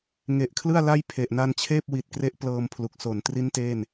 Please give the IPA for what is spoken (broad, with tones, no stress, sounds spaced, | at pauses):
ŋ e˨˩ ʔ kʰ l ɯ˥˩ a̯ l a˥˩ j pʰ e˨˩ ʔ n a˧ n t͡ɕʰ eː˥˩ p̚ w i˨˩ t̚ k r e˦˥ ʔ p l ɤː˧ m pʰ l u˨˩ k̚ s o˨˩ n t r i˦˥ n t eː˥˩ n